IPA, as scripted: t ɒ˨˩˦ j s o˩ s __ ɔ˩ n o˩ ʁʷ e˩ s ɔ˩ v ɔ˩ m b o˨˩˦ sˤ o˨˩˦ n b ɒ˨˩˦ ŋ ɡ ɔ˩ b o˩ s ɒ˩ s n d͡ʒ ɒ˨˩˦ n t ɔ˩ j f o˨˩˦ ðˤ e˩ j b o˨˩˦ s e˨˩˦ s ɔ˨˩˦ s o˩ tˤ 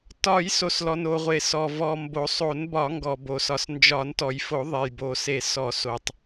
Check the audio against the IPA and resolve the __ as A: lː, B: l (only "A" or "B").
B